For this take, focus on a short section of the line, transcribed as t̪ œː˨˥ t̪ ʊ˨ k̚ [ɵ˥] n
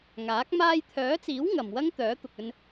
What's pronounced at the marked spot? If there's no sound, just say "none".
ɵ˧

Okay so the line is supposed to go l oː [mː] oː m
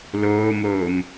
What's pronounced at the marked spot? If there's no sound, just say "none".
m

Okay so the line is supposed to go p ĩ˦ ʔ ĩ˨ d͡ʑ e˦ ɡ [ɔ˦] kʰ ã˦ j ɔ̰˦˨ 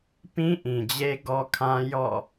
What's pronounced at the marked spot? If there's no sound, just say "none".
ɔ˦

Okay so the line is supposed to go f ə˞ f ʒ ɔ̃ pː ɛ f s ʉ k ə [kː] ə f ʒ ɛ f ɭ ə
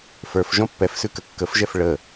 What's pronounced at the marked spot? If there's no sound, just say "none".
kː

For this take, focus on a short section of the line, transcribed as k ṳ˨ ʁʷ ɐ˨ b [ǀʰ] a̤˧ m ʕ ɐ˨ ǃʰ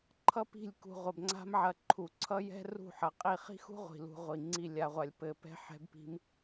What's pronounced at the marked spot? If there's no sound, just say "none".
ŋ͡ǀ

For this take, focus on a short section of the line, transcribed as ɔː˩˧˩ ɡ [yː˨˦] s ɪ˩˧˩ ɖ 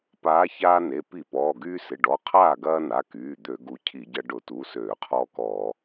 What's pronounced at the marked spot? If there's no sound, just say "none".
yː˦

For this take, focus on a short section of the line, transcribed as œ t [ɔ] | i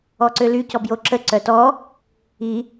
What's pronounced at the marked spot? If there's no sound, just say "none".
ɔ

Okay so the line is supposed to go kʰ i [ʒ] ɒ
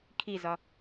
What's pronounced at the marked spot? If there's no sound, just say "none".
z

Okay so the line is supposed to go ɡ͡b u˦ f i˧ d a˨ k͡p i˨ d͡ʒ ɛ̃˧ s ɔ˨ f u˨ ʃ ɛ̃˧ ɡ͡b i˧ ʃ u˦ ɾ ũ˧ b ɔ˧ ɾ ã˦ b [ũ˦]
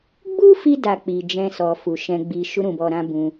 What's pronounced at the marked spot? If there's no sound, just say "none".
ũ˧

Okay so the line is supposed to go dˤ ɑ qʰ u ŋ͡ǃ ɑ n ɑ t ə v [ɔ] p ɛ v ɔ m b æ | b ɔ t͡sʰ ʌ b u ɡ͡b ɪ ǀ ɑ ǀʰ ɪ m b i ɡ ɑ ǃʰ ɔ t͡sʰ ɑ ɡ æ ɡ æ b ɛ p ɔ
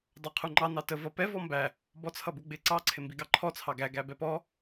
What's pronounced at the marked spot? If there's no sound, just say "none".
ʌ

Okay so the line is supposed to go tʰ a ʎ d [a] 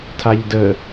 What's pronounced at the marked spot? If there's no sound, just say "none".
ə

